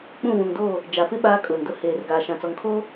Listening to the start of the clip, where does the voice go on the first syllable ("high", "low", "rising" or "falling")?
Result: falling